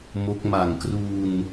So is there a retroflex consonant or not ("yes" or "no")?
no